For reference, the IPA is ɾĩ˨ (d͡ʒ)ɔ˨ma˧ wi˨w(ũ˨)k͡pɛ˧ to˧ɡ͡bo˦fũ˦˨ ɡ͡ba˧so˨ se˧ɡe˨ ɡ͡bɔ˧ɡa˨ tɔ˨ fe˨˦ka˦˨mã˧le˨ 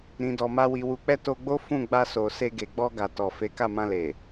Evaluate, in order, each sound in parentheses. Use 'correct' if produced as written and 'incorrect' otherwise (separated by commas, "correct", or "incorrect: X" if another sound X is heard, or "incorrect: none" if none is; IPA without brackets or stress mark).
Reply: incorrect: d, incorrect: u˨